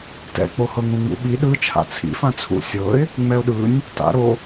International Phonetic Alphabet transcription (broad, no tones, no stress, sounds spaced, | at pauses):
t ɛ̰ k͡p o h ɤ ŋ ũ ŋ͡m ṵ ɓ i ɗ ɯ t͡ʃʰ a̰ t͡sʰ ḭ f ã t͡sʰ ṵ sʲ ɤ ɪ̯ | ŋ͡m ɛ ʊ̯ ɗ ɯ nʲ | t a̰ ɾ o